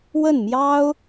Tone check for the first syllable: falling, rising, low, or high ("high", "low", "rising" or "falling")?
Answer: falling